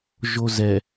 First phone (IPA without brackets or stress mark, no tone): ʒ